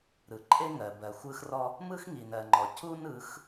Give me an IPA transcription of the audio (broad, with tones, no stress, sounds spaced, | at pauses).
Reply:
ɾ ɯ˨ ǃʼ e˦ ŋ ɜ˨ b ɜ˨ xʷ ɯ˦ x r ɔ˦ | m ɯ˦ x ŋ i˨ n ɜ˨ ŋ͡ǃ ɔ˨ c u˦ n ɯ˨˦ x